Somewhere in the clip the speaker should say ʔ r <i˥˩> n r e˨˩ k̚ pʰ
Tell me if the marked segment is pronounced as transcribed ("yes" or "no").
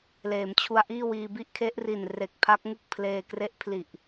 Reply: no